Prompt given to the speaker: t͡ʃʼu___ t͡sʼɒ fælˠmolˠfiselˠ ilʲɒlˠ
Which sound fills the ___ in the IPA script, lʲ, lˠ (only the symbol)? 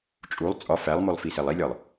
lˠ